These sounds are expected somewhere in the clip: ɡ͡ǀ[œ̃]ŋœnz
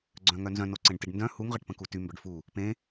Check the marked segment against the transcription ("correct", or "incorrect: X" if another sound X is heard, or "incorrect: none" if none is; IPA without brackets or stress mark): correct